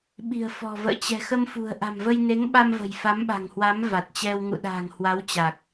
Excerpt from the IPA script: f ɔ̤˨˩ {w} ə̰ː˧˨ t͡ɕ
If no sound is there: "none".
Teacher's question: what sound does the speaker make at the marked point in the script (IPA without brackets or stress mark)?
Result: v